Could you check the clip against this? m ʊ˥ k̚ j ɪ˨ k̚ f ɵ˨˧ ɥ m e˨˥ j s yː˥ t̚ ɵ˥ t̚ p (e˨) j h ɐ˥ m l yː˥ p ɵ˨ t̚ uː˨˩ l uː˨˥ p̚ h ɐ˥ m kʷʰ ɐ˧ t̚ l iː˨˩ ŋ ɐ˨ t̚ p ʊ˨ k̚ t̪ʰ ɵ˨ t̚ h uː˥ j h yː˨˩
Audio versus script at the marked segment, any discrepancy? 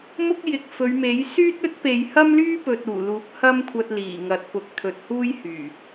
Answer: no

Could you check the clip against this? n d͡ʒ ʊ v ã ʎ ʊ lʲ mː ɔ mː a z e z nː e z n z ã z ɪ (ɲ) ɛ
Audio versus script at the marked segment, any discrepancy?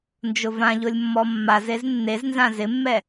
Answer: yes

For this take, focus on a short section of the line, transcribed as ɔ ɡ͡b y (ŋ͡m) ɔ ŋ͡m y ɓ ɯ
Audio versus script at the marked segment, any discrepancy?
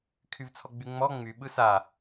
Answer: no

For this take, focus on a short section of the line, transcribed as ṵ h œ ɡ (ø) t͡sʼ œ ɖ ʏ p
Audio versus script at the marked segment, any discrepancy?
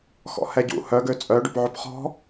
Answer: no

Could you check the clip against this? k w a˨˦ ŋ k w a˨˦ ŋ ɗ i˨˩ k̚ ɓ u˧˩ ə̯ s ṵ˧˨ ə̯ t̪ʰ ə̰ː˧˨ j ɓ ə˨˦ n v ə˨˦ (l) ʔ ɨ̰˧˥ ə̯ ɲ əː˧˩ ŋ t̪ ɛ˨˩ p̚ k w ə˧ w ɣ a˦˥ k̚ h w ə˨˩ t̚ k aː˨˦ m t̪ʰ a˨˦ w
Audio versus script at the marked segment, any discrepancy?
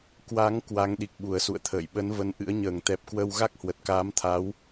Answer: yes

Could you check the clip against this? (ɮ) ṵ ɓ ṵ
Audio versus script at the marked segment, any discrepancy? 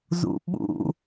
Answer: yes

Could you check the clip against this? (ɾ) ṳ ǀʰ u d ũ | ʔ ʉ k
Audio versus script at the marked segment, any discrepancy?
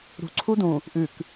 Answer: no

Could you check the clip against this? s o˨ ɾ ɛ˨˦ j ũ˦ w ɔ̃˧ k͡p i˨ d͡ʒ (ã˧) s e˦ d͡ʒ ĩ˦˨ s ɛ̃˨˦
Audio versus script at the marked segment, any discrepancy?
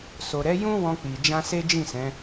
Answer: no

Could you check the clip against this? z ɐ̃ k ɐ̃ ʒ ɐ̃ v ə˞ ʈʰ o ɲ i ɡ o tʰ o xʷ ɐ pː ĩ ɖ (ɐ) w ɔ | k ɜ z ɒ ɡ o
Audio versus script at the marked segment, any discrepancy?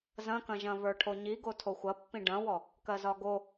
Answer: yes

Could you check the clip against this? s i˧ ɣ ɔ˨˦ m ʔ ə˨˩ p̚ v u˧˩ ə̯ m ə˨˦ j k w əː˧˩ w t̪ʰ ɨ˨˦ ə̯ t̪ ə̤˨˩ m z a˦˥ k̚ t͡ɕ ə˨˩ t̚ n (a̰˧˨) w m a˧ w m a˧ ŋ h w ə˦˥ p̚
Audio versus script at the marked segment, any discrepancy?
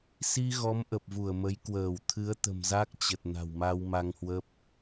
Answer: yes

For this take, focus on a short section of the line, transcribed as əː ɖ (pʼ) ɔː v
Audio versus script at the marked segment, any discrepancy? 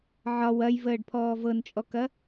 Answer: yes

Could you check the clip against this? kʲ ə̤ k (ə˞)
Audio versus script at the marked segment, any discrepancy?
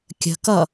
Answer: yes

